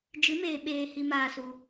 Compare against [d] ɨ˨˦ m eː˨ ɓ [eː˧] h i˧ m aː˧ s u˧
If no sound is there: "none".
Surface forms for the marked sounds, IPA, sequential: d͡ʒ, eː˨

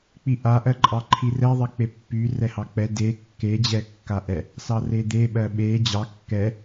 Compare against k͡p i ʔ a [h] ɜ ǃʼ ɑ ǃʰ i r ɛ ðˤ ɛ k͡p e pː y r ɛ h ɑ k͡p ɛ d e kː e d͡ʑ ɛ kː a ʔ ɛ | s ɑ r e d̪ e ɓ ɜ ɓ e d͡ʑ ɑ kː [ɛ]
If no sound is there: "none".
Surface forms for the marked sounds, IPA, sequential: ʔ, ɛ

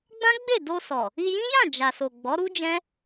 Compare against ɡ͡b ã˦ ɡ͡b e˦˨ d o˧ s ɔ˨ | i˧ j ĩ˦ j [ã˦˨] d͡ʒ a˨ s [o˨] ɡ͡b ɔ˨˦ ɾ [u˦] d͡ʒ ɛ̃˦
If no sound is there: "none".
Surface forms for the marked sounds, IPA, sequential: ã˦˨, o˨, u˦

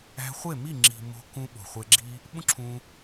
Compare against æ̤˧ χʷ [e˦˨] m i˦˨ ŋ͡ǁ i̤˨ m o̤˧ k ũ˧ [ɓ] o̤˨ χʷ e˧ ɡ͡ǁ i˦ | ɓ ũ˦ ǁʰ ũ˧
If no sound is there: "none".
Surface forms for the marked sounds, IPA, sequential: e˦˨, ɓ

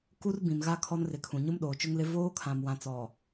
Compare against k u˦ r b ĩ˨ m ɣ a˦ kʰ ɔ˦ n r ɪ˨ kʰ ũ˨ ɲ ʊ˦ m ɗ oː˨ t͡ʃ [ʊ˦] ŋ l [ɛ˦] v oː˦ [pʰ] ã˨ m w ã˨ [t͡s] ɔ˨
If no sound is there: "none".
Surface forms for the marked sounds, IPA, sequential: ʊ˦, ɪ˦, kʰ, t͡s

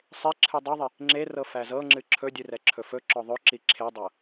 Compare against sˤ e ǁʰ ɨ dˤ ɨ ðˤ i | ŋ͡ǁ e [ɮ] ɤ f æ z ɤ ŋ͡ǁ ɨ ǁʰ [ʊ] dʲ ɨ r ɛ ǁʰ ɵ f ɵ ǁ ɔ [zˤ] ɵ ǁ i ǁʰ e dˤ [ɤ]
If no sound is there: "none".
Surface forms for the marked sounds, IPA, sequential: r, ɵ, ðˤ, ɤ

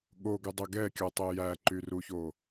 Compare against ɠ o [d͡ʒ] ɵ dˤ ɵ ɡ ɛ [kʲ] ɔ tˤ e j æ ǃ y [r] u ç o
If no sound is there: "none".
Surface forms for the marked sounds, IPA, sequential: ɡ, kʲ, r

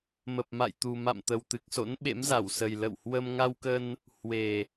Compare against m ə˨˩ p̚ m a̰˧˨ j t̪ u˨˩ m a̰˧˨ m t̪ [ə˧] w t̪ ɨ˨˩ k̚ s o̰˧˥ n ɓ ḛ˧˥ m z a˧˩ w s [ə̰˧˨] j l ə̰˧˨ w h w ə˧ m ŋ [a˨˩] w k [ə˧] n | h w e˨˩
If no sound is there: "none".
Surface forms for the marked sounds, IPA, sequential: ə˨˩, ə˨˩, a˧, ə˧

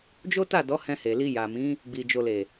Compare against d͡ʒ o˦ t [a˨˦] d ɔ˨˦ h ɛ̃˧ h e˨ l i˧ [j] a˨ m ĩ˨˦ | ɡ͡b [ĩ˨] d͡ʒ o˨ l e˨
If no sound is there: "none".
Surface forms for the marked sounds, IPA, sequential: a˦˨, j, i˨

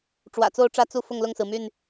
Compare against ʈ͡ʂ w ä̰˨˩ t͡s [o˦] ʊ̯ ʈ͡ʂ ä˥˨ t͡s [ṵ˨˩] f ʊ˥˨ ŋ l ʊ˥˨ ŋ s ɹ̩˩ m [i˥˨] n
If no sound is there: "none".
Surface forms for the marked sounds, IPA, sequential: o˦, u˥˨, y˥˨

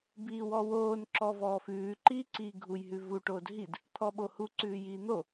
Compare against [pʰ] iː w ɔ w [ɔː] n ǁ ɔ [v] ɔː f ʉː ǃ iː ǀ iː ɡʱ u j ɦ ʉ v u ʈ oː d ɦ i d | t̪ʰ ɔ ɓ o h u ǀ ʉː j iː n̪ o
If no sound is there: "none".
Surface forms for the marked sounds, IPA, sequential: b, oː, v

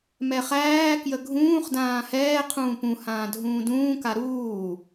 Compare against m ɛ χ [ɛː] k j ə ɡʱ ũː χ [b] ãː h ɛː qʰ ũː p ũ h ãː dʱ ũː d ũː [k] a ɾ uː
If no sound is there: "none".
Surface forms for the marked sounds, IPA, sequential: æː, d, k

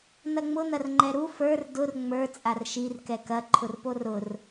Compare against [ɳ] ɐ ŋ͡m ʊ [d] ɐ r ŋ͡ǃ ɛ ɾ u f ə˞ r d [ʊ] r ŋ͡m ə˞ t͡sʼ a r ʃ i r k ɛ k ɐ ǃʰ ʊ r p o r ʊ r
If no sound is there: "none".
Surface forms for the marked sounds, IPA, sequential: n̪, n̪, ʊ

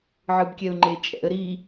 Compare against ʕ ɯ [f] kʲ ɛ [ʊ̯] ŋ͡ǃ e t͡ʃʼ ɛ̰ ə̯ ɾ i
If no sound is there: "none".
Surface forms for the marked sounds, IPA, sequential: b, ʊ̯

